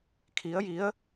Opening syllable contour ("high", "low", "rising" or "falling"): rising